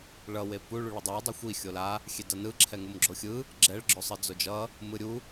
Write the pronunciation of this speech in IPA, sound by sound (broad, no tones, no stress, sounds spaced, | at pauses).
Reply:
ɭ ʌ w e p u ɭ u ɭ ʌ dˤ a dˤ u xʷ i xʲ o l a | xʲ e d ʌ n ɯ ǁʰ ɛ ŋ u m ɡ͡ǁ o xʲ ɯ | ɡ͡ǁ ɛ ɭ ɡ͡ǁ o sˤ ɯ d͡z o d͡ʒ ʌ | m ɯ ɾʲ u